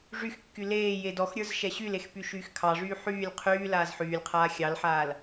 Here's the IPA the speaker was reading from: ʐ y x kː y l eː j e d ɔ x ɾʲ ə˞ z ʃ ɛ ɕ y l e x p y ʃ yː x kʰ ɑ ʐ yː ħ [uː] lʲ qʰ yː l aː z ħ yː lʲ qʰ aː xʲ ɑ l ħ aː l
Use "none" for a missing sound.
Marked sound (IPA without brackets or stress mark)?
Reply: yː